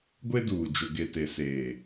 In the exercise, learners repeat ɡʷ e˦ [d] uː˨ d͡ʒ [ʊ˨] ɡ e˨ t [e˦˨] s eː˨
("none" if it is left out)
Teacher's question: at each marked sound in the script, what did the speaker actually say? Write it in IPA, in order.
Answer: d, ʊ˨, e˨

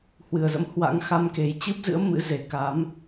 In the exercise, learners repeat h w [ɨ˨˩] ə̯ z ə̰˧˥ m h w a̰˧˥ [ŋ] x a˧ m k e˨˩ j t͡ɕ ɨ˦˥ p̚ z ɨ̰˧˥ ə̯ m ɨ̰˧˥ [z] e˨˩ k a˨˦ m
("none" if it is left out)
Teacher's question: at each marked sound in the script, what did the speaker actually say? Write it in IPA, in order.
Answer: ɨ˨˩, ŋ, z

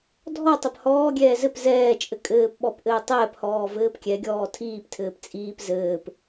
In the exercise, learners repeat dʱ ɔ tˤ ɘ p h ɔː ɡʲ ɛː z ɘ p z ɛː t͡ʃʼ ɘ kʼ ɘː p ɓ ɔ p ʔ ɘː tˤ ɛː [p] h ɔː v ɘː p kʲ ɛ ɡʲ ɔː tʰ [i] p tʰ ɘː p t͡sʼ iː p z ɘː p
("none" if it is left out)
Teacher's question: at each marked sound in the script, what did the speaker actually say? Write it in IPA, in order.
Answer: p, iː

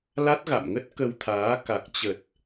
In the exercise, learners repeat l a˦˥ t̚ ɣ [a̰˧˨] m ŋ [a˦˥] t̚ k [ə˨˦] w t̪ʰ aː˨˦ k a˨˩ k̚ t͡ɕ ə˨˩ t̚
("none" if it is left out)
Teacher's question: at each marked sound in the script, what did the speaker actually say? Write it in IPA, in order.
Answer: a̰˧˨, ə˦˥, ə˧

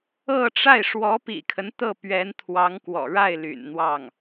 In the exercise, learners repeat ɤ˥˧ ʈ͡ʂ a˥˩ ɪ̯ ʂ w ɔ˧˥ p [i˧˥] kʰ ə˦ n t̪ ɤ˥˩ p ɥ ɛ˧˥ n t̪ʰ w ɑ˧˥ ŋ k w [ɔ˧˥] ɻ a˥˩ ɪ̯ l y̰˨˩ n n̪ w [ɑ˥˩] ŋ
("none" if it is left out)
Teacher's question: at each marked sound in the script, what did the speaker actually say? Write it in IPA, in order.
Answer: ḭ˨˩, ɔ̰˨˩, ɑ˥˩

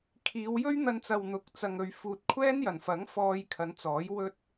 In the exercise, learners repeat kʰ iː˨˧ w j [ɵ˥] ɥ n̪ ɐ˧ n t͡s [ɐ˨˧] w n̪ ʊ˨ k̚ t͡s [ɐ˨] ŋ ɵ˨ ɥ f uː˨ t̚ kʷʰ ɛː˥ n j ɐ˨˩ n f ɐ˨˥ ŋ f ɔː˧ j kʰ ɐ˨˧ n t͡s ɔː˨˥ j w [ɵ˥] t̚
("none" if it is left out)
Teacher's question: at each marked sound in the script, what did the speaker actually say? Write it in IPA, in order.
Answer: ɵ˥, ɐ˨, ɐ˨, ɵ˥

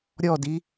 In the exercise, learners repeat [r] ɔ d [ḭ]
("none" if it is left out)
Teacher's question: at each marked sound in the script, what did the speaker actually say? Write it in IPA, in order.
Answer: ɾʲ, i

